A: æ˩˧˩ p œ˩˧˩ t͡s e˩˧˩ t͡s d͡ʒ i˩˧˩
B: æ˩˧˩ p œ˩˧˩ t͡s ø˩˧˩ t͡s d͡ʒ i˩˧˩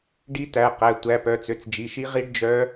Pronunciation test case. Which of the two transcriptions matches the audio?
B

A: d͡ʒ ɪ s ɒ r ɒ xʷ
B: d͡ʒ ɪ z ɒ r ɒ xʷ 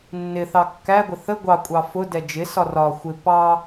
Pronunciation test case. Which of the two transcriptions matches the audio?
A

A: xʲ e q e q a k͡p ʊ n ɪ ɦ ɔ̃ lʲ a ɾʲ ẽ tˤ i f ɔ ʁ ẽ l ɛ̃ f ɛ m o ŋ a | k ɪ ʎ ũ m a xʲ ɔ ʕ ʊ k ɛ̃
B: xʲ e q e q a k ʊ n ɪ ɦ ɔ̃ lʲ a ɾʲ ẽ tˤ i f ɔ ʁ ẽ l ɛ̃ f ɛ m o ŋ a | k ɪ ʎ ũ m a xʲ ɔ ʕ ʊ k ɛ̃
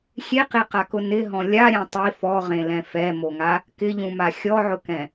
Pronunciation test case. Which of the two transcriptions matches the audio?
B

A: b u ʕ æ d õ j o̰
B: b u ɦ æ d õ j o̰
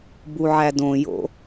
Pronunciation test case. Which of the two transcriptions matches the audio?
A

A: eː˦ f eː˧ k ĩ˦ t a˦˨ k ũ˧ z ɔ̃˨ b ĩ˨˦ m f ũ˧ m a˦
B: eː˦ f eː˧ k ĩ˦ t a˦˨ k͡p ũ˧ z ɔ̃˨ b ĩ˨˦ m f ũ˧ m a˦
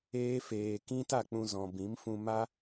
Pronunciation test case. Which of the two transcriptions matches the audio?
B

